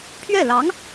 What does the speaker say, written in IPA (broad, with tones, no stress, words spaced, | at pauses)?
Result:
pʰɥɛ˥˩lɑ˧˥ŋ